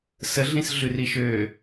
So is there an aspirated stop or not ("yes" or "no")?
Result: no